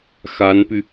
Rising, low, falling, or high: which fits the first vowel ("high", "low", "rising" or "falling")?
rising